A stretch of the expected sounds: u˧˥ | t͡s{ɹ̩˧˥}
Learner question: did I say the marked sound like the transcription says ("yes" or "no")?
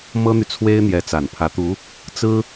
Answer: no